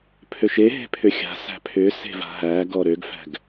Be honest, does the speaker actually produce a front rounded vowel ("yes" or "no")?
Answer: yes